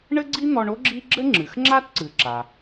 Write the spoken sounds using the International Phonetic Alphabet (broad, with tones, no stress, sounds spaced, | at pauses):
ɳ ɘ˥ ɡ͡ǀ i˥ n̪ ɔ˧ ɳ o˥ ɡ͡ǁ i˥ ɡ͡ǁ ɘ˥ ŋ͡ǁ ɨ˩ x ŋ͡ǁ a˥ t ǀ ɨ˩ ǁ a˩